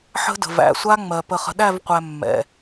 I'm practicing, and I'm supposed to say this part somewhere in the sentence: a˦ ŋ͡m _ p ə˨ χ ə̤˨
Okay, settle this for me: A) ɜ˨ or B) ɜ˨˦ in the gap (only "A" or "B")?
A